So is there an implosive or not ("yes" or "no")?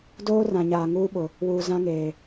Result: yes